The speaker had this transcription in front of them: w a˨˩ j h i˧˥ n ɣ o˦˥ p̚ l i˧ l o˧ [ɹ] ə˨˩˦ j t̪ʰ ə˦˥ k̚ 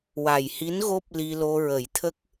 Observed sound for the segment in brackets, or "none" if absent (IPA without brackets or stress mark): ɹ